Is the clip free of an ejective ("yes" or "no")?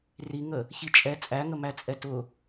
no